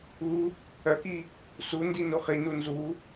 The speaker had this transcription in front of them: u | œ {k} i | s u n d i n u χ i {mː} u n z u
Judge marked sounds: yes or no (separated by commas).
yes, no